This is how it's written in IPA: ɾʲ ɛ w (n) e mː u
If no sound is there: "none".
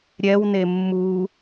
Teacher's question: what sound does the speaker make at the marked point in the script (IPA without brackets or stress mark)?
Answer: n